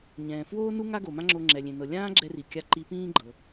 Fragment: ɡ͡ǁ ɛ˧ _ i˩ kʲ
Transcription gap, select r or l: r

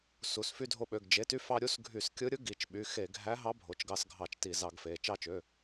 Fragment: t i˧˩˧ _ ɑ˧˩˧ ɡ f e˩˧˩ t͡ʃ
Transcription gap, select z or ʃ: z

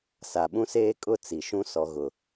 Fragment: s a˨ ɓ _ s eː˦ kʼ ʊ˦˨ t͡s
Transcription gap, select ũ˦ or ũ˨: ũ˦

